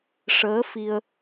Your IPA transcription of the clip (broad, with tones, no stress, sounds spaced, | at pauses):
ʂ əː˧˥ f i˧ ə̯